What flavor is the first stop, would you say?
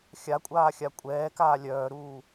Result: ejective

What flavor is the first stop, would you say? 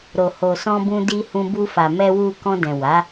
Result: plain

